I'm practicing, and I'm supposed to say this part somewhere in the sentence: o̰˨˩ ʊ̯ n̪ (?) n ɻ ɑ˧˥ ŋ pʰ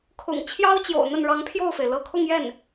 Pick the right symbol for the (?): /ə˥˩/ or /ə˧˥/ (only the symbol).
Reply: ə˥˩